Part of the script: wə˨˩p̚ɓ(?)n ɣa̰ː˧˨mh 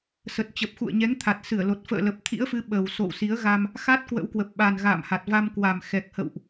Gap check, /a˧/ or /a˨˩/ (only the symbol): a˨˩